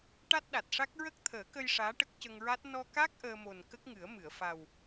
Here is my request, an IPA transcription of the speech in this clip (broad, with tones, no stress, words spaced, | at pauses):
ʈa˦˥t̚ɗa˨˩t̚ʂa˦˥k̚ ɹə˦˥k̚t̪ʰəː˨˩˦kə˧j ʂaː˧˥ʈə˦˥k̚cə˧ŋɹa˦˥t̚ nɔ˧ka˦˥k̚ ʔəː˧mo˨˩n kə˦˥k̚ŋɨ˨˩˦ə̯mɨ˨˩˨ə̯fa˨˩w